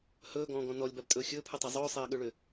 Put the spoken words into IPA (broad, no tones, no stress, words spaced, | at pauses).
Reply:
hɵːɡɔ̃ːɡɔ̃ nɔlʲbabtʼɵː xʲɵːpʰɯtˤa zˤɵːsˤɛːɠɵɭʏ